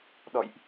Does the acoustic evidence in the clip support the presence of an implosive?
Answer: yes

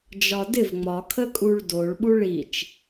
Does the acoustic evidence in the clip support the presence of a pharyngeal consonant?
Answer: no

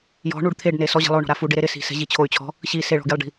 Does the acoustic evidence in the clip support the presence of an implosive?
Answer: no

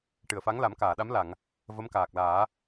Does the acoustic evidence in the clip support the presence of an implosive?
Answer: yes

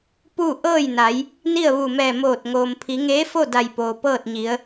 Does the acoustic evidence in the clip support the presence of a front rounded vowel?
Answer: no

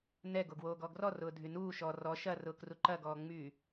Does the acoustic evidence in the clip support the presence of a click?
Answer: yes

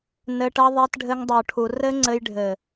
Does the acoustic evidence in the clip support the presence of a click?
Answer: yes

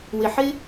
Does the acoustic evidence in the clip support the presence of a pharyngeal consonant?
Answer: yes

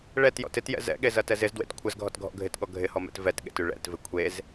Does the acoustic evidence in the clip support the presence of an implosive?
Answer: yes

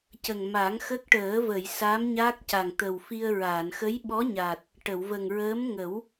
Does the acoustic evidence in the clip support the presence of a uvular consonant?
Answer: no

